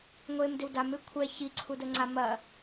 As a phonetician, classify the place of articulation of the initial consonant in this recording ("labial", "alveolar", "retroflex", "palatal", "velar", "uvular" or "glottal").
velar